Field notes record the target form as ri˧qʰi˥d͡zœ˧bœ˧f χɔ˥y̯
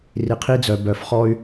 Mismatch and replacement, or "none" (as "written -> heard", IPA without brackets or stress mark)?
none